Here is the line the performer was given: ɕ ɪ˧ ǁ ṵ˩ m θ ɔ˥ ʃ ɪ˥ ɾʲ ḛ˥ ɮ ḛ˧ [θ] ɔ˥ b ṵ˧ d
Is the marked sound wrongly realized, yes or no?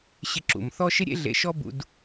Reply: yes